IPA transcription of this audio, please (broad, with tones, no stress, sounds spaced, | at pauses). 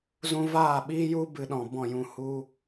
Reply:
z ũ˧ v aː˦˨ ɓ iː˦ j u˦ b ɨ˧ ɗ ɔ̃˨ b ɔ̃˦˨ j ũ˧ h u˦